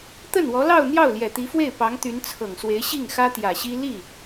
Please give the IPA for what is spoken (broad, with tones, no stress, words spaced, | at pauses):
t̪ə˥˩nwɔ˧˥lɑ˥˧ʊ̯ n̪jɑ˥˩ʊ̯ljɛ˨˩t̪i˧˥fwe˥˩ɪ̯ pɑ˧˥ŋt̪y˧˥n t͡sʰɤ˨˩ŋswe˧˥ɪ̯ ɕi˥˩ŋxä˥t̪jä˨˩ɕi˥ li˥˩